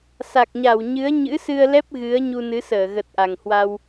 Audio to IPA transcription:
s a˨˩ k̚ ɲ a˧˩ w ɲ ɨ˨˦ ə̯ ɲ ɨ̰˧˥ s ɨ˧ ə̯ l ɛ˦˥ p̚ ɣ ɨ˨˦ ə̯ ɲ u˧ n ɨ˨˦ s əː˧˩ ɣ ə˨˩ t̚ ʔ a˨˩ ŋ h w a˧ w

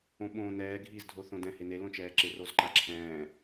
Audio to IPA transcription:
õ ɓ õː n ɛː ɡʱ iː z dʱ o θ õ d ɛ̃ h e n e l õ t͡ʃ ɛː ǁ ɪ r o z ǃ a ǁʰ ɛ̃ː

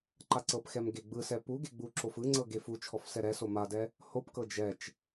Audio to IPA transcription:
ǃ a ǀ ɤ p x ɛ m ɡ e ɡ͡b ɯ s ɛ p u ɡ e ɡ͡b u ǁ o f ɯ ŋ͡ǀ ɤ ɡ e f u t͡ʃʰ ɔ f s ɛ ɾ ɛ s o m a d ɛ | h o p k ɤ d͡ʒ ɛ t͡ʃ

